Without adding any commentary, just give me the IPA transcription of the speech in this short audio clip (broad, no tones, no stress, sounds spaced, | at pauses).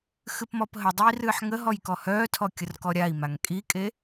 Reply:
x ɨ p m ɔ p ɦ ə dˤ ɨ i̯ r ɨː ħ ŋ ə ɦ ɔ j k ɔ h œː tʰ ɔ kʲ ə r k ɔ ɾʲ a i̯ m a ŋ kʼ i kʼ e